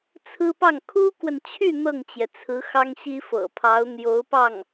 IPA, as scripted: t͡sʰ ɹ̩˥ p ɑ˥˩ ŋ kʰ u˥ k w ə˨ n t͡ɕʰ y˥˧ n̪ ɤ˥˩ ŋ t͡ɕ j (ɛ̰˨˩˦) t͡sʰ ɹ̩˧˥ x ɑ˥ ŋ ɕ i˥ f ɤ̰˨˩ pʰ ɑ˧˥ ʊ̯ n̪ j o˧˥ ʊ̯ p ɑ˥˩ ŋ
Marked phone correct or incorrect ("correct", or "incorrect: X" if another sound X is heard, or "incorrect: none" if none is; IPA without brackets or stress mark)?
incorrect: ɛ˩